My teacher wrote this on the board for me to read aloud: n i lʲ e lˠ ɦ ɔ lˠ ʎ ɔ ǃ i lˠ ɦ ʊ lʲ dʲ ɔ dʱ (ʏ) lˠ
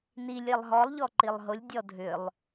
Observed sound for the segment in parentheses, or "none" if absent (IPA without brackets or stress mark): ʏ